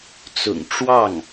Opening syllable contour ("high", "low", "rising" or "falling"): low